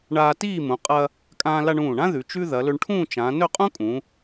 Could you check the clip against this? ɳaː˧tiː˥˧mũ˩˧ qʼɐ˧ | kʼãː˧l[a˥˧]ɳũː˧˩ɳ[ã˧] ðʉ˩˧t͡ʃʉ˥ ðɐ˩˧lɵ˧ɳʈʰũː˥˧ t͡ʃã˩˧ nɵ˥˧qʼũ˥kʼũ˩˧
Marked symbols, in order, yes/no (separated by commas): no, no